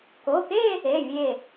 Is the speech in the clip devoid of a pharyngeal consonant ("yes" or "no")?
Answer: yes